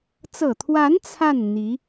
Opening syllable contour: low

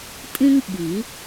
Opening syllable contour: high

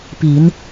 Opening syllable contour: low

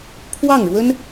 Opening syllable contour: falling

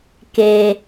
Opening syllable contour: low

